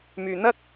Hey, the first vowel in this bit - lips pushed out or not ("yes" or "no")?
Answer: yes